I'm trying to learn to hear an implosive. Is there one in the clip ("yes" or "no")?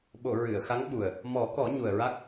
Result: yes